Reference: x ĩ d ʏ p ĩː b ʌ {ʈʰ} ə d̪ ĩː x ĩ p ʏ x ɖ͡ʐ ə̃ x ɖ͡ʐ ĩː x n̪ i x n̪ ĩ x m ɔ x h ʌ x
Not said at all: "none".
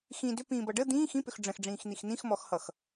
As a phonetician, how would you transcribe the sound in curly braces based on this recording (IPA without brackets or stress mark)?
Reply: ɖ